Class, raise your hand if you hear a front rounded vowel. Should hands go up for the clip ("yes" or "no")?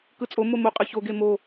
no